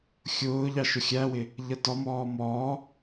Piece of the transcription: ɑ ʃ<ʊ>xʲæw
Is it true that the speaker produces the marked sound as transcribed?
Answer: yes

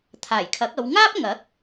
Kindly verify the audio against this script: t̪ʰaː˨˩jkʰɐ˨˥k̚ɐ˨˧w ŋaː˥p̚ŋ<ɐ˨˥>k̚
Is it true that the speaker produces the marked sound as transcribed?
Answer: yes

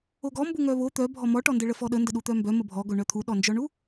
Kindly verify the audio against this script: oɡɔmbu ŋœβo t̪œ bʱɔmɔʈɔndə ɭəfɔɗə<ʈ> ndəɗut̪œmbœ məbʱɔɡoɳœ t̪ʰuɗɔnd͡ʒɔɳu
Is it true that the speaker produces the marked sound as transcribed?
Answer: no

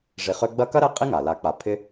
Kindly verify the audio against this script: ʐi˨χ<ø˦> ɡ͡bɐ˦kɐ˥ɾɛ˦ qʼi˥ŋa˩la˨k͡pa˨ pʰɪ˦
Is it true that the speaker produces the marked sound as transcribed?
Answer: yes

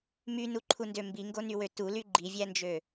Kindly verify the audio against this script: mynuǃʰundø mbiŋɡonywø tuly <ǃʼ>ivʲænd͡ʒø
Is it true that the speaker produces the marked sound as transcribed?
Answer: no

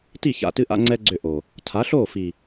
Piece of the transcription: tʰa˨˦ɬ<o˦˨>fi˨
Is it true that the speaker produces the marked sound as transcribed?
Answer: yes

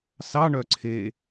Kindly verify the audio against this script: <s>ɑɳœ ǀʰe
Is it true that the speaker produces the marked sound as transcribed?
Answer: yes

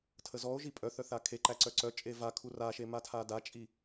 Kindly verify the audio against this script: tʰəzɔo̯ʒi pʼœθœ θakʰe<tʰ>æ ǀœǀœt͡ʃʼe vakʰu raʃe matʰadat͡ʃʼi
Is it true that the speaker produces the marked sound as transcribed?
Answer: no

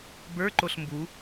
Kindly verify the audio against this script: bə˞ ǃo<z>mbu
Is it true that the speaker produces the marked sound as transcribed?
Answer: no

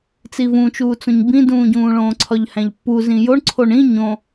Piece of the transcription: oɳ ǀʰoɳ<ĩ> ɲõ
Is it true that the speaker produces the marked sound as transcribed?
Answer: yes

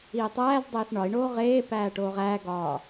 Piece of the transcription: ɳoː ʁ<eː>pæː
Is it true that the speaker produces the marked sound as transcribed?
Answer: yes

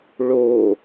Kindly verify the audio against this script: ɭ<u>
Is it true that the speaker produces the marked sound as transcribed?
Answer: no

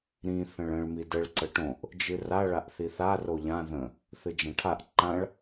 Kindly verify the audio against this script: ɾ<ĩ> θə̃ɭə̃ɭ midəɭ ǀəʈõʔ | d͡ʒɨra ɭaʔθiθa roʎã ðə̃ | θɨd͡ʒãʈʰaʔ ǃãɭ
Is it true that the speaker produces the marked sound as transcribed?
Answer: yes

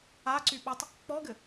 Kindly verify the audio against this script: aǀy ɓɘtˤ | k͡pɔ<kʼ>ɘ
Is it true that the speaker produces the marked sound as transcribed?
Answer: no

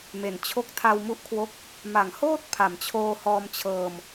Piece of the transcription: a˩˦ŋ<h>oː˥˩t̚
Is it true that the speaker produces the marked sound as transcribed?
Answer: yes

